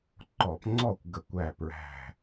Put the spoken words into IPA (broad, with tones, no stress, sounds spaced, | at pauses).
ǃ ɔ˧˩˧ p ŋ͡ǀ ɔ˥˨ kʷ ɡ ə˧˩˧ kʷ æ˧˩ p ɹ æ̤˧˩